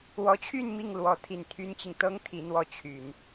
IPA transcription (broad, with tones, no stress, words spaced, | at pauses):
wɔ˧˥t͡ɕʰy˥˧n mi˥˩ŋlwɔ˧˥ t̪ʰi˨˩nt̪ʰy˥nt͡ɕi˨ŋ t̪ɤ˥ŋ t̪ʰi˧˥n̪wɔ˥˩ t͡ɕʰy˨˩˦n